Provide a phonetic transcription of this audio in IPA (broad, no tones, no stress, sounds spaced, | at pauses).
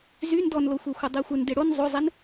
z y n d ɔ n l o xʷ e xʷ ə dˤ e xʷ ə n d e ɽ o n zˤ o zˤ e n